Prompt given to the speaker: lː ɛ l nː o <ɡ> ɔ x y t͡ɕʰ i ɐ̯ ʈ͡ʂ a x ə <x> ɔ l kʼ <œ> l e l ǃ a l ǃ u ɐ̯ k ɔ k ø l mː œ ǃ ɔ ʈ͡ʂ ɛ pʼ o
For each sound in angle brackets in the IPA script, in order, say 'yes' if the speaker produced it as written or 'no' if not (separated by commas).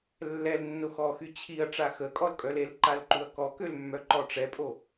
no, no, yes